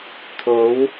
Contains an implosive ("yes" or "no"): no